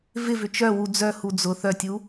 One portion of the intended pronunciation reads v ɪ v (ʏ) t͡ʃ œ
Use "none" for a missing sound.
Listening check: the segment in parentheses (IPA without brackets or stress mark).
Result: ʏ